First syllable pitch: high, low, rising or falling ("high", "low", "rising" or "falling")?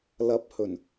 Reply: rising